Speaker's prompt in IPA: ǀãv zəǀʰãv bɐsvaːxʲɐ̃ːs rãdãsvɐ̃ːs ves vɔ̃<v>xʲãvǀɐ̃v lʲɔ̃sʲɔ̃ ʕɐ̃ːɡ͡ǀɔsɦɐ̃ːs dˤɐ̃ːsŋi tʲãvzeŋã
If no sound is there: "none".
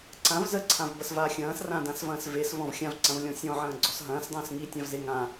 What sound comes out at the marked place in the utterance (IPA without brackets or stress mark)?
v